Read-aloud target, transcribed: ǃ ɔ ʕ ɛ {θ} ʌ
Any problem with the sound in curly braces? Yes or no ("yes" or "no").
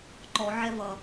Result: yes